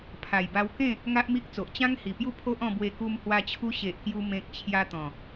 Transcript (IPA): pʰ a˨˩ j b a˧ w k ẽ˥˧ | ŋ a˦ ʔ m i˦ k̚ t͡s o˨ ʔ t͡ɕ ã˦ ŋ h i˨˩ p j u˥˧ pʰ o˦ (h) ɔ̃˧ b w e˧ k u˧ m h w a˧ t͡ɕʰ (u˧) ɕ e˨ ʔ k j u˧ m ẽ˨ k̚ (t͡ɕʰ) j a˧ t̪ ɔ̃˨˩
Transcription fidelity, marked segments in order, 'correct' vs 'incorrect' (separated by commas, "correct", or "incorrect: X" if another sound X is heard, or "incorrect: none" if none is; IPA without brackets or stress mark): incorrect: ʔ, correct, correct